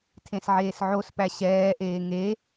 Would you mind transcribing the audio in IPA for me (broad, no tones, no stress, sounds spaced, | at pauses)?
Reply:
tʰ ẽ s ʕ eː s ʕ o s p æ ɕ ɛː ʔ eː ŋ e